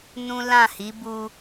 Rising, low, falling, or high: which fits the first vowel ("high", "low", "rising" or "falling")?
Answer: high